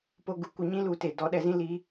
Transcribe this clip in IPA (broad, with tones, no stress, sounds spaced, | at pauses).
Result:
p o˧ ɡ u˧ kʷ ɨ˧ ɲ ĩ˦ l u˧ t e˨ d ɔ˨˦ ɗ ɛ˧ z ĩ˦ l i˧